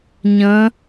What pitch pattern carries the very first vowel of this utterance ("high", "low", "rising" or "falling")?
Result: rising